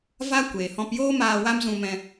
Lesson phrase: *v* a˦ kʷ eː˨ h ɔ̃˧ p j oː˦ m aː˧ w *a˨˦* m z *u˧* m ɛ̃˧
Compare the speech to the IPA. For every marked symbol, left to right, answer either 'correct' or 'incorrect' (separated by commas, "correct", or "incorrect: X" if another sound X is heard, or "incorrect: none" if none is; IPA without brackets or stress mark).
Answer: correct, incorrect: a˦, incorrect: ũ˧